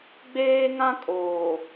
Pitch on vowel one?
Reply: high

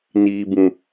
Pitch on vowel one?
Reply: low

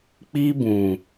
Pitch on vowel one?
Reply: high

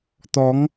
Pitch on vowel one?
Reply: rising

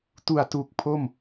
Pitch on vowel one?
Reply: low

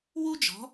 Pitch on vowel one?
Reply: high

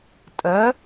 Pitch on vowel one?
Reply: rising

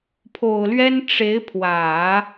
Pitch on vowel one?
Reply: low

